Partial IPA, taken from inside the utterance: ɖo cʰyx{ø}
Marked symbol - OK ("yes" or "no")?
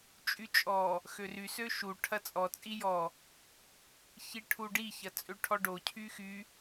no